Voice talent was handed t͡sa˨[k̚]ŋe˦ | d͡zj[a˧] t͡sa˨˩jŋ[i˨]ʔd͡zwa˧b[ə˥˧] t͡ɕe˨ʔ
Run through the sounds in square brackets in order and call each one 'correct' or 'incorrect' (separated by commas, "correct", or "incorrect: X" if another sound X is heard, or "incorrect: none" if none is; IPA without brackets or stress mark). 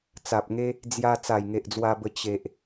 incorrect: p̚, correct, incorrect: e˨, incorrect: ə˧